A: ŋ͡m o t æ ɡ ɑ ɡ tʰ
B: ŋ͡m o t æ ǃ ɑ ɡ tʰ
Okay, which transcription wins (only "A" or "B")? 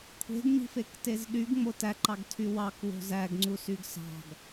B